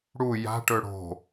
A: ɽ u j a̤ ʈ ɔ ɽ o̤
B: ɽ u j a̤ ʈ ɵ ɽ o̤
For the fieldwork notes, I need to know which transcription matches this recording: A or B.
B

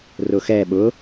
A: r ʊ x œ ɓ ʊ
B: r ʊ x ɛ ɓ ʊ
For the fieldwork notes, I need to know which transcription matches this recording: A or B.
B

